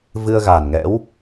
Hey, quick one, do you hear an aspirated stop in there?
no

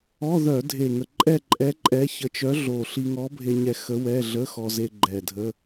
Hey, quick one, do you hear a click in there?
yes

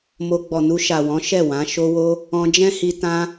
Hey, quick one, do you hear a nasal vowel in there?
yes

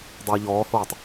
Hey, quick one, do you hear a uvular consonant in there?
no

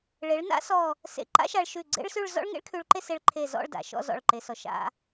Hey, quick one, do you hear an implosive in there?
no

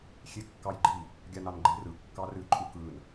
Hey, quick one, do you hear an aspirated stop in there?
no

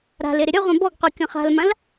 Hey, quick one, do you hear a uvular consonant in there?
yes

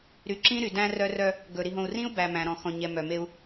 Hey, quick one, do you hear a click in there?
yes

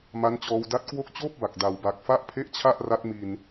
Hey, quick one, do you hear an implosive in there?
no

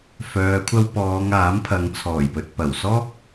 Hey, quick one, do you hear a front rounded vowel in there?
yes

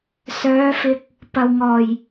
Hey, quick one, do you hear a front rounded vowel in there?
yes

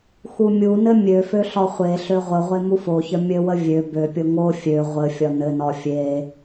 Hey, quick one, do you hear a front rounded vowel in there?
yes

